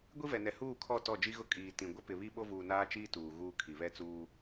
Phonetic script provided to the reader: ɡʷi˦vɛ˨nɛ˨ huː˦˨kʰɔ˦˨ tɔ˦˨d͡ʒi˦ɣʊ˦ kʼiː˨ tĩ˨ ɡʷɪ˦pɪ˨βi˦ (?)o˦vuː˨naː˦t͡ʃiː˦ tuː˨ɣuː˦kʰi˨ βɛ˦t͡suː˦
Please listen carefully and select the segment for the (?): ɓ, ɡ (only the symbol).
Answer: ɓ